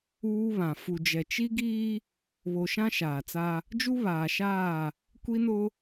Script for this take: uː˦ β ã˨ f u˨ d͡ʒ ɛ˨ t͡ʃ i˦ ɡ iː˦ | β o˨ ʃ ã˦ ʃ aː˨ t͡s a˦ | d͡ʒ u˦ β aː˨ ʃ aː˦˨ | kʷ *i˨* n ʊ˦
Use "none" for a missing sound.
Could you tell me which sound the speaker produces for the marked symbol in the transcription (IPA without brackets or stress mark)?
i˦